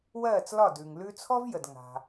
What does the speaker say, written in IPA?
w ɜː˥˩ t͡s l ɒ˥˩ d ʉ˩ ŋ l ʉ˧ t͡sʰ ɔ˥ v j ə˩ d ŋ a̤˩

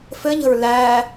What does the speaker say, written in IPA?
f ɘ ʎ ə̤ ɹ l æː

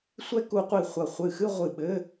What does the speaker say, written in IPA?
sʷ ɛ˦˥ k u˨˦ qʷ i˧˩ χʷ ɐ˧˩ χʷ ɨ˧˩ x ɨ˥˧ ʁʷ ɨ˧˩ ɓ ɘ˧˥˧

